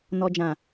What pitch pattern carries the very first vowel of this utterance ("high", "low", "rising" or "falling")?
low